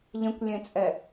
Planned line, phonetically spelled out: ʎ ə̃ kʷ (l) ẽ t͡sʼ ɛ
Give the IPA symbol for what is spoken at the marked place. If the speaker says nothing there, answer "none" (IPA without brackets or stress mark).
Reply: lʲ